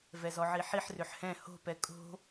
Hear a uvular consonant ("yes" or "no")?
no